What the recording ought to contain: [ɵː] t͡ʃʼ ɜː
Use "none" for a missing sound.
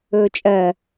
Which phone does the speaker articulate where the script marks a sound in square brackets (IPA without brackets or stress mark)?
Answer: ɵː